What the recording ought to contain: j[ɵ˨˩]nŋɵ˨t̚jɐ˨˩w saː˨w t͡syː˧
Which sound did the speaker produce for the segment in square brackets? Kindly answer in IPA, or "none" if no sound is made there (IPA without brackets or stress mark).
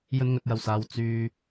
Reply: ɵ˧